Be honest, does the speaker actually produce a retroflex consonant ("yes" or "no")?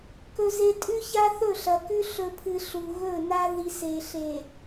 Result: no